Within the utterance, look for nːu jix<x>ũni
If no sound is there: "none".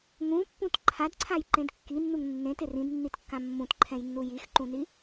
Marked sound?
ǃ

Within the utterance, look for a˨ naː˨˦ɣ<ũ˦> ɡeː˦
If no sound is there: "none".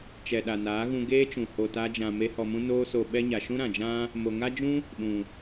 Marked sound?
ũ˧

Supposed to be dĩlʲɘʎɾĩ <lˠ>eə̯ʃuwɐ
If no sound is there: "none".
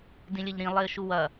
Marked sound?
lˠ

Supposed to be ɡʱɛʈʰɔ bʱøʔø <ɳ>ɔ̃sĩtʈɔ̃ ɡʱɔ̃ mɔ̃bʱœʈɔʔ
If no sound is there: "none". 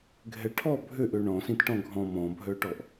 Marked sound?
ɳ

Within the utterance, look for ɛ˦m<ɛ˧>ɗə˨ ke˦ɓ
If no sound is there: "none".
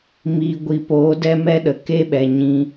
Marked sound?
ɛ˦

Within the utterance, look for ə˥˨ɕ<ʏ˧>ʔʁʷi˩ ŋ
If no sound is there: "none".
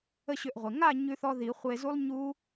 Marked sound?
ʏ˧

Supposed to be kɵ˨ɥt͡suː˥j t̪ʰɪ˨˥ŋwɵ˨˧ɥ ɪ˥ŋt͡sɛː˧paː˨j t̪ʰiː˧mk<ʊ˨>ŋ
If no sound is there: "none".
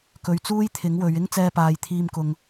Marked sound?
ʊ˨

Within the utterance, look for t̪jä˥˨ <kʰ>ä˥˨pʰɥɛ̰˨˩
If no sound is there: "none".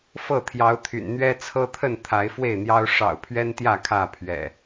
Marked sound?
kʰ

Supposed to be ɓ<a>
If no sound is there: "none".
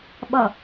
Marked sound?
ʌ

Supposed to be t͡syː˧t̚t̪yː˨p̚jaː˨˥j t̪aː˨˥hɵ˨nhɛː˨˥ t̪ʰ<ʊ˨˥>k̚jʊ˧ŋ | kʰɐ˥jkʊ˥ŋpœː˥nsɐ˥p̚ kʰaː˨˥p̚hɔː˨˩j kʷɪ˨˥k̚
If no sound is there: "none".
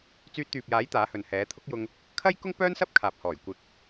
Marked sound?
ʊ˥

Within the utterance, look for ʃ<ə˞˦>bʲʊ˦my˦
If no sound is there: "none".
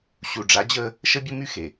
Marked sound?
ə˦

